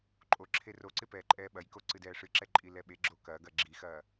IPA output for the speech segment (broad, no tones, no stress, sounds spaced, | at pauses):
ǃʼ o ǁʰ e r o ǀ ɪ p ɛː ǃʼ ɛː ɓ ɐ j k o ǀ ɨ d ɛː ʂ ɨ ǁ ɛ ǃʼ i l ɛ ɓ e ɡ͡ǁ o k ɐː ɡ ɐ ɡ͡ǁ i x ɐː